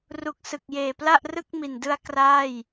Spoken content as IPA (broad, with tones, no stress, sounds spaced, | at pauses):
r u˨˩ k̚ s ɯ˨˩ k̚ j eː˨˩ p l a˥˩ ʔ r ɯ˥˩ k̚ m i˨˩ n d ɯ˦˥ a̯ k r aː˥˩ j